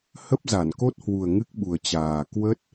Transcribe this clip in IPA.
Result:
h ə˦˥ p̚ z a˧˩ n k o˦˥ t̚ h w u˨˩ ə̯ ŋ ɨ˦˥ k̚ ɓ u˨˩ ə̯ t͡ɕ aː˨˩ k w ə˦˥ t̚

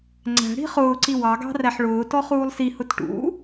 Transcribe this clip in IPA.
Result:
ŋ͡ǀ æ̤ ɽ i̤ χ ʊː ǀ i w ɑ ɡ ɑ̤ r æ ħ ɭ ʊː t ɔ χ uː lˠ s i h ʊ t ʈ ṵ

